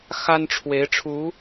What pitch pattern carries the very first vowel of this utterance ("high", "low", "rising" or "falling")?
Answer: high